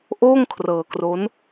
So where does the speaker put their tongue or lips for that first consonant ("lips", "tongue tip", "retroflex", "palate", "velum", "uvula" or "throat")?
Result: throat